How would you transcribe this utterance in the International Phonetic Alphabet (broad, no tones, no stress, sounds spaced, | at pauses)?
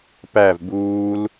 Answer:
p æ v b uː l